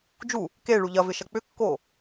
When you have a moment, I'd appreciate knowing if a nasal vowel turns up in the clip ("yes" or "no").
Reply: no